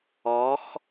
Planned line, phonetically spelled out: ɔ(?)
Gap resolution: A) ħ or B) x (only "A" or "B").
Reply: B